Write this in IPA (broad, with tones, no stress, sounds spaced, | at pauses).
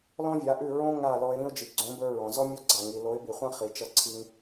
l ɔ̃˦ vʲ a˨˦ ʔ ʉ˦˨ ɹ õ˦ ŋ a˦˨ l ɔ˧ ɪ̯ ɾ ĩ˧ ʊ̯ d͡ʒ i˨ ɡ͡ǀ õ˨˦ b ə˞˧ ɹ ɔ̃˨ z ɔ˦ mʲ ɔ˦ ɡ͡ǀ a˨ ŋ i˨ l o˨˦ ɪ̯ b i˨ χʷ ã˦ χ i˨ t͡ʃ ʌ˧ ǀʰ i˧ ŋ